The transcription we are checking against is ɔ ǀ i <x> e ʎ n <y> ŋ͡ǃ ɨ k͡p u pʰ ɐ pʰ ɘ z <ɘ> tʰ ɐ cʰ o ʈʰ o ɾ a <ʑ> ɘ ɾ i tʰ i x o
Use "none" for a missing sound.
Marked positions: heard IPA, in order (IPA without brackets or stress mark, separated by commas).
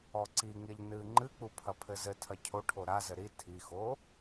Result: ŋ, ɨ, ɘ, z